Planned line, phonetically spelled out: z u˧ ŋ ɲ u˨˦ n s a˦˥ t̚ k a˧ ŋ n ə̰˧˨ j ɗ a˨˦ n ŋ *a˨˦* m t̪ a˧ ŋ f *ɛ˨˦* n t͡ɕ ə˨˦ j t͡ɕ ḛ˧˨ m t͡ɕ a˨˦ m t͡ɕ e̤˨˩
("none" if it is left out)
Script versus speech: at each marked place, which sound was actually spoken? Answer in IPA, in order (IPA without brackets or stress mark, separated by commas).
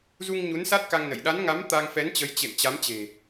a˨˦, ɛ˨˦